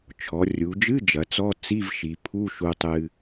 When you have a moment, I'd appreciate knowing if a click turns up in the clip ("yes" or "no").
no